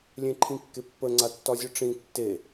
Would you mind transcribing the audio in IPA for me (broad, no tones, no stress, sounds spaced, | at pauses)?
lʲ ẽ ǃʰ ĩ kː e pː ə ŋ͡ǀ a tː ɒ zʲ ɯ ʈ͡ʂ ĩ tː e